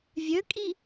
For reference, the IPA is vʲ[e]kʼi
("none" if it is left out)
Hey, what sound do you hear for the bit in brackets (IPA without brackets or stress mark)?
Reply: ø